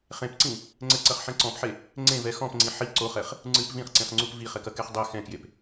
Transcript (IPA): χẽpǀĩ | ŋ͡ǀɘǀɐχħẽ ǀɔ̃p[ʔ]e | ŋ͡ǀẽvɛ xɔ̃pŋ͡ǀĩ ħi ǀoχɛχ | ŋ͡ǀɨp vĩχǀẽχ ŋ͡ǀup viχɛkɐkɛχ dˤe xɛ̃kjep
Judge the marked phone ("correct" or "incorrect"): incorrect